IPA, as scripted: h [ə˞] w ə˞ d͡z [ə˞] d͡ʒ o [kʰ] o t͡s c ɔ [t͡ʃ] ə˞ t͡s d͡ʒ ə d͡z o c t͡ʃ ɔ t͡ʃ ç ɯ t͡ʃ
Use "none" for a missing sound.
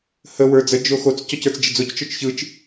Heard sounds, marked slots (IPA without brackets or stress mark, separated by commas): ə, ə, x, c